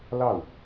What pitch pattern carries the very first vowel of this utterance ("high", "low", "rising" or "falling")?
falling